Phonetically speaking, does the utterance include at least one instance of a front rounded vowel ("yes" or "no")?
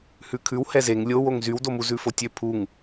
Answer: yes